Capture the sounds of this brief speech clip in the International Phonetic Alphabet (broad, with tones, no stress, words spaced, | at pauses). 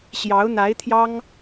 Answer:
ɕjɑ˧˥ʊ̯n̪a˧˥ɪ̯t̪ʰjɑ˥ŋ